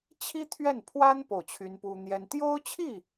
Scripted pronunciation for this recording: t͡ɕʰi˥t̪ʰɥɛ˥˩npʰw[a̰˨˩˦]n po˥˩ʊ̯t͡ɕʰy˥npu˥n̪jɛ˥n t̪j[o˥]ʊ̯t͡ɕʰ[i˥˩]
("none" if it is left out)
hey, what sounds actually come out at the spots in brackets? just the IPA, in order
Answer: a˥, o˥, i˥˩

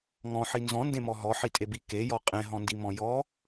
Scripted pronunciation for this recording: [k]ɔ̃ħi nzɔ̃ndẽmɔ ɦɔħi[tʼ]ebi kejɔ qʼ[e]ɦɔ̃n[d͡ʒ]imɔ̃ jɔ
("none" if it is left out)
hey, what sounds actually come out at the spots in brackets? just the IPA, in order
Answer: ŋ, tʼ, ẽ, d

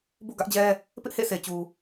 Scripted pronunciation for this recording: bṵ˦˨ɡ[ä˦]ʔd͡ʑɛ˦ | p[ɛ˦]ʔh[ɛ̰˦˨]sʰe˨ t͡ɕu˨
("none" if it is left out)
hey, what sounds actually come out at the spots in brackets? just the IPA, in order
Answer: ä˦, ɪ˦, ḛ˦˨

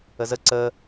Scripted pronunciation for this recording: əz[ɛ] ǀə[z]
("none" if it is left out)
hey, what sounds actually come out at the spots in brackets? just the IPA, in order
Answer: ə, none

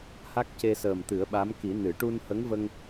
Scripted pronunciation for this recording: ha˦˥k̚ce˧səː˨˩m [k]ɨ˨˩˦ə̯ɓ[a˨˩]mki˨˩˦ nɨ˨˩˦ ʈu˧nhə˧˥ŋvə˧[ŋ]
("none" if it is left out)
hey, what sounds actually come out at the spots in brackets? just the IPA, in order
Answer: t̪, a˧˥, ŋ

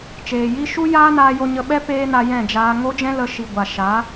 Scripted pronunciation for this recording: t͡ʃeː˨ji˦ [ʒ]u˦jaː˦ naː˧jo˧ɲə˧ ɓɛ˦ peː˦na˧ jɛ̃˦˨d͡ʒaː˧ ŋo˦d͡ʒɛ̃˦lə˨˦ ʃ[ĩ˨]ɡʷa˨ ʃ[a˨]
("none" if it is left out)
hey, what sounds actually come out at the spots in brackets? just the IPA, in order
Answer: ʃ, i˨, a˨˦

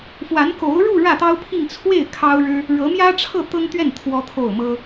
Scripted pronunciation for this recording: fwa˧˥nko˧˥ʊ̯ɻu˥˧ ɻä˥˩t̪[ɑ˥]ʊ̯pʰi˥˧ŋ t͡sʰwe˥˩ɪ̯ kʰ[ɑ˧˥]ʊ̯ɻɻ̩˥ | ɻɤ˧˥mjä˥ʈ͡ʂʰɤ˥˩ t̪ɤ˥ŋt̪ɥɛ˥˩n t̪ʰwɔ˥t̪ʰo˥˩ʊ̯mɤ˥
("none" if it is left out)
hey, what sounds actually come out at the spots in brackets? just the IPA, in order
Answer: ɑ˥, ɑ˥

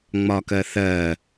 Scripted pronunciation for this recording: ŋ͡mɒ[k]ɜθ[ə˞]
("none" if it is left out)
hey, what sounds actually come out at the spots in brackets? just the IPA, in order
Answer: k, ɜ

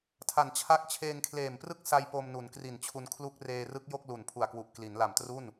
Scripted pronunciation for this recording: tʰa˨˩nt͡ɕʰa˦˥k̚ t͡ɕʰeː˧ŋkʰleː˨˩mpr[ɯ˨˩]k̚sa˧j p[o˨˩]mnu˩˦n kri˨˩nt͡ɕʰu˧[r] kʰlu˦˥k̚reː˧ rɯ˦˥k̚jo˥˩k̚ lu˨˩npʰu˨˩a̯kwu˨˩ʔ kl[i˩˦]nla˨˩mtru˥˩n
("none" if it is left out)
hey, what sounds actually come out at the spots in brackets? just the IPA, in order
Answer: ɯ˥˩, o˧, n, i˩˦

